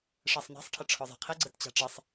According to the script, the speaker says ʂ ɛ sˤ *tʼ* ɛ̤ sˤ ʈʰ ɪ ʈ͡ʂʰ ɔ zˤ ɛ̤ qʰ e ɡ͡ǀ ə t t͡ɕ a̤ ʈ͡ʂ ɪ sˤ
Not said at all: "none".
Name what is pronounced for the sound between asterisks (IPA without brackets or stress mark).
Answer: n